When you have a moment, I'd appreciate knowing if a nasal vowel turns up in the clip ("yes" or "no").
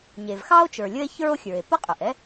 no